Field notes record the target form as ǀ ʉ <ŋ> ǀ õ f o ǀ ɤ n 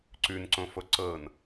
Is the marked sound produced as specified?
no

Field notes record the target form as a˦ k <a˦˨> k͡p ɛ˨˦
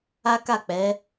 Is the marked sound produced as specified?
yes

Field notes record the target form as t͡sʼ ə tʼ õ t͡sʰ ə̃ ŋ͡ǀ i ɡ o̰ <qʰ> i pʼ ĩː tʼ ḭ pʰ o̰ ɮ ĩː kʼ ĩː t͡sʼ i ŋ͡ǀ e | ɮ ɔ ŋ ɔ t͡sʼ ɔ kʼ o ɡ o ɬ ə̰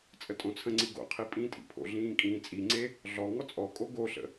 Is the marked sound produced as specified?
yes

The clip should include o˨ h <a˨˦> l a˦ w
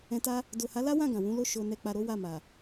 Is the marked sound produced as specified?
yes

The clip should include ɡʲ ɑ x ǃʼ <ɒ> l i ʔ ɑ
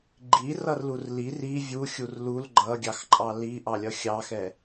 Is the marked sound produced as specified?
no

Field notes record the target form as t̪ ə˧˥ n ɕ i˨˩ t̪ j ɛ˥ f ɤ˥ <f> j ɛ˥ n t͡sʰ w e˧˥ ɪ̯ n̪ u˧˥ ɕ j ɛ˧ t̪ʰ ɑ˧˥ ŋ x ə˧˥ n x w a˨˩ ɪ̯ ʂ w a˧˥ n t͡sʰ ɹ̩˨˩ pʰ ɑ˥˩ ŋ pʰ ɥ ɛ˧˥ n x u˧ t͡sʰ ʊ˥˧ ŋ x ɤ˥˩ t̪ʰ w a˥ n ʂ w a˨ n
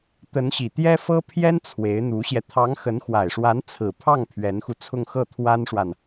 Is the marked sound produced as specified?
no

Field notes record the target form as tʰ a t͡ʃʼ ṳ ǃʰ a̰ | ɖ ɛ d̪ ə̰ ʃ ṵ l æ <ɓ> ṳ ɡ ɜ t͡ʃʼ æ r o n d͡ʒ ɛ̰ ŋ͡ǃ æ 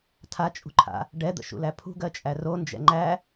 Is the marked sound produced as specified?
no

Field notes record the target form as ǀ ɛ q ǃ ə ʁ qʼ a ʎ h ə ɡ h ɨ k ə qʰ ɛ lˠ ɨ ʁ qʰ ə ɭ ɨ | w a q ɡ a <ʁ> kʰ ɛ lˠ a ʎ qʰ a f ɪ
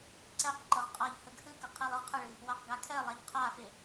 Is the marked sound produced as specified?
no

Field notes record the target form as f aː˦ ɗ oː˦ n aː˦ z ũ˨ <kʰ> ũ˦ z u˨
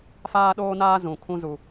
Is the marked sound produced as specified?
yes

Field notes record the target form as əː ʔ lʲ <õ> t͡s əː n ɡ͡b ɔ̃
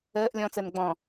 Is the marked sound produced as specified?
no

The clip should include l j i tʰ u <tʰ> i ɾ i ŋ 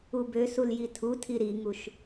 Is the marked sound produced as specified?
yes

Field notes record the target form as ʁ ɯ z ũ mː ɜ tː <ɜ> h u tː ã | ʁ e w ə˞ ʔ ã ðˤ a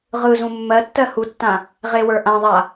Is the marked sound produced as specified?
yes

